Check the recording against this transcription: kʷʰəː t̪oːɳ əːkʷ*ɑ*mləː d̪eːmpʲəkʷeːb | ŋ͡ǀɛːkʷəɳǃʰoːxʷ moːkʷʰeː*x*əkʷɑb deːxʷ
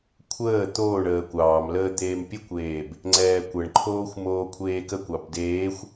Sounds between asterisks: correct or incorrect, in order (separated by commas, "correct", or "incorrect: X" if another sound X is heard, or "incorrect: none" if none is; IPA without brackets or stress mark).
incorrect: ɑː, incorrect: k